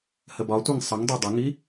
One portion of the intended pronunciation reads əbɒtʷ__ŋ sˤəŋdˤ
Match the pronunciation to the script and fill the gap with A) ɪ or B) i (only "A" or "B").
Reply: B